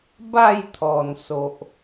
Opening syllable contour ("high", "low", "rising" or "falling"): falling